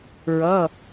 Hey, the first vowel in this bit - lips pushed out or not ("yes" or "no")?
no